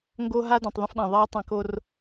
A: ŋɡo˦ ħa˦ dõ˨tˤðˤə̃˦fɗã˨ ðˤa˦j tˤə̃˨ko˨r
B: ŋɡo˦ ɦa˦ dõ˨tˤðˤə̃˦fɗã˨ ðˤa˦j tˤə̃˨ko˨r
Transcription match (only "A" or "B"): B